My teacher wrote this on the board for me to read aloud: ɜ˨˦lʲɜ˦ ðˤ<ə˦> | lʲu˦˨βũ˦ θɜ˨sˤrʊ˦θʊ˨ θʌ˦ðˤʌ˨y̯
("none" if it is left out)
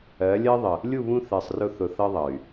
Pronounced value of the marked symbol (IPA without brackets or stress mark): ə˨